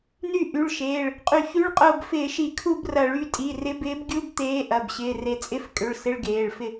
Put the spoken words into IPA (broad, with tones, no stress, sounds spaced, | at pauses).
n y˦˨ ʔ y˩˧˩ ɭ ʃ eː˩˧˩ ɭ | qʼ y˧˩˧ ç y˧˥˧ ɭ qʼ ʊː˦˨ b f ɪː˧˩˧ ʃ i˧˩˧ kʰ u˦˨ b r ɐ˧˩˧ ɭ y˩˧˩ tʼ i˩˧˩ r ɪ˨˥ b ɪː˨˥ b ɡʲ u˧˥˧ b t̪ eː˨˥ ʔ ɐ˩˧˩ b ɕ ɪː˩˧˩ r e˨˥ t͡sʼ ɪ˧˥˧ f kʼ ʏ˩˧˩ ɭ s ɪ˧˥˧ ɭ ɡ eː˩˧˩ ɭ f ɪ˦˨